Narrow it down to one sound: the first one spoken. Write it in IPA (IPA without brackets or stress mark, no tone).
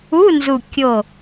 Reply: u